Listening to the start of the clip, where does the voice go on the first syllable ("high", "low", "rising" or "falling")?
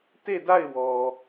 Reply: falling